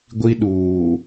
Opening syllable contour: high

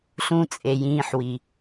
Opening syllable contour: low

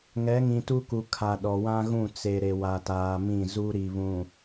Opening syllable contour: rising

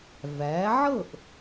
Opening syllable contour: rising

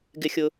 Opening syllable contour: low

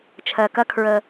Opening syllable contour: low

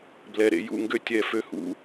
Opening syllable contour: low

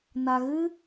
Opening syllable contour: low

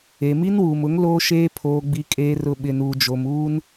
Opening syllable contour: low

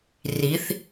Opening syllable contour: rising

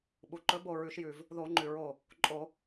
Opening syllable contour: low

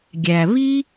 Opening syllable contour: low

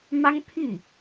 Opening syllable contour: high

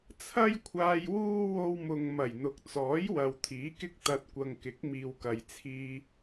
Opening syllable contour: high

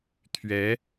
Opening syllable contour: rising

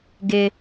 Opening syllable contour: high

